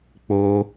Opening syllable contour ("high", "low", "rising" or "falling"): high